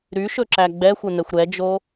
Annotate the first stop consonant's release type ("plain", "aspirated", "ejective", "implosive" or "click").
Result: click